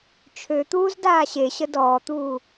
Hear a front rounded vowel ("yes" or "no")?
yes